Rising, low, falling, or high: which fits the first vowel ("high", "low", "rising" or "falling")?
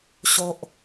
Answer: low